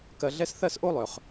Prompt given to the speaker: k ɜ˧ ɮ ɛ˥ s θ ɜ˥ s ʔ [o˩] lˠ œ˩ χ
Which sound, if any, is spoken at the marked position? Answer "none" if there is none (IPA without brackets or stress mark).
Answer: o˥